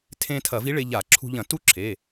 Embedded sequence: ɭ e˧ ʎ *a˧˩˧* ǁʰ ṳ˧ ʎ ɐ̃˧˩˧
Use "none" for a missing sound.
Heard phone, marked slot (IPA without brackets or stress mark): a˧˩˧